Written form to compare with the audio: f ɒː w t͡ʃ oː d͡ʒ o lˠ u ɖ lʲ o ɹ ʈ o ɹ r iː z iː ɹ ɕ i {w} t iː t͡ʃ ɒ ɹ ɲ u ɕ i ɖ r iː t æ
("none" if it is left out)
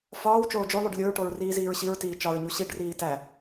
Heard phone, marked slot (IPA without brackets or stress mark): ɹ